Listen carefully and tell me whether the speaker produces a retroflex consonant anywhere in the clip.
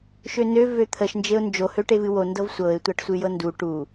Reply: yes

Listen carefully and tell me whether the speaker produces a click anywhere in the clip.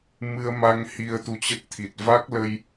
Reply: no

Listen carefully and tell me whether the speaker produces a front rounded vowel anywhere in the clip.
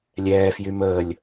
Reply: yes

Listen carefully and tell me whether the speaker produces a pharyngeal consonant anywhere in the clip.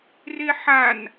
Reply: yes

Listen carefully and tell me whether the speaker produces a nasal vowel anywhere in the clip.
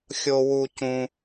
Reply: yes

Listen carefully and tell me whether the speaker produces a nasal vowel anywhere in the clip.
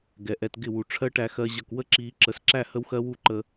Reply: no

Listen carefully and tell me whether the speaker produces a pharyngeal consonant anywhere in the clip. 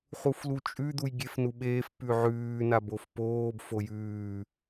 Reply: yes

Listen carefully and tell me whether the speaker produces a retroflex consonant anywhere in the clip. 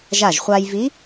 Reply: no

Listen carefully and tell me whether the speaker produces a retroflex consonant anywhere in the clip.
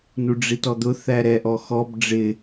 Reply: yes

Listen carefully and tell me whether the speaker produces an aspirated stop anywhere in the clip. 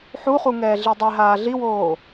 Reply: no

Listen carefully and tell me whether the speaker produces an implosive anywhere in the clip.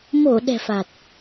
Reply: yes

